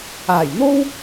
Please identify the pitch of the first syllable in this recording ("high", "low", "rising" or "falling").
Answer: low